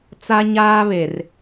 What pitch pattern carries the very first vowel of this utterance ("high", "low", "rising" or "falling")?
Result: high